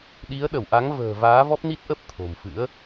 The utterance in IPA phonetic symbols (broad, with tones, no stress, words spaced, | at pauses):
ɗi˨˦ə̯ɗə˧˩wʔa˨˦ŋ və̤ː˨˩ vaː˨˦vɔ˦˥p̚ni˦˥t̚ʔə˦˥p̚ t̪ʰo̤˨˩mfɨ̰˧˥ə̯